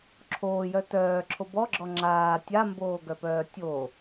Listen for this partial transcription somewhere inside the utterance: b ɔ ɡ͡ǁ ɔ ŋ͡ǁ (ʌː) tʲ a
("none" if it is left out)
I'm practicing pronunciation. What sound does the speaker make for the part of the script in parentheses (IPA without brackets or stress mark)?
aː